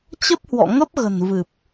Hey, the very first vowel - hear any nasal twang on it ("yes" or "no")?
no